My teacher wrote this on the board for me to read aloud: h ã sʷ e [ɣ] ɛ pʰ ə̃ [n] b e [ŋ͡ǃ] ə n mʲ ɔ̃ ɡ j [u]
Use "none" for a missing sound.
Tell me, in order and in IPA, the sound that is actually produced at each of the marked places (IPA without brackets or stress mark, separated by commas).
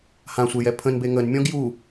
j, n, ŋ, u